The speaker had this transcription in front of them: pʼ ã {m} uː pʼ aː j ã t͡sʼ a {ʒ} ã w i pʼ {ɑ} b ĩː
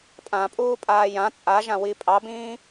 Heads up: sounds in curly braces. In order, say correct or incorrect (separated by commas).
incorrect, correct, correct